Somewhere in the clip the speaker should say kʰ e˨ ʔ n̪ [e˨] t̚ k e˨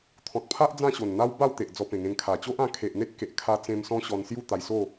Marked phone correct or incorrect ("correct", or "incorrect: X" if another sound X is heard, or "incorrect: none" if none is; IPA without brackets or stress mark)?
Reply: incorrect: e˦